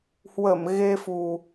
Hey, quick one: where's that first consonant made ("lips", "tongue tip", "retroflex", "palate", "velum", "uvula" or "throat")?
throat